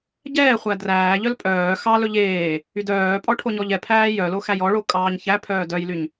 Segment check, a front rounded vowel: present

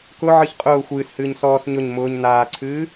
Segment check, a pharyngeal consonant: present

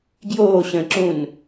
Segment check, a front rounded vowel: absent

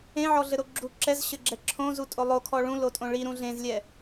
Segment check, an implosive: absent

